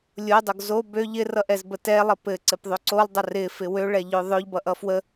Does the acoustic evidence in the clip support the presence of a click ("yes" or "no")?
yes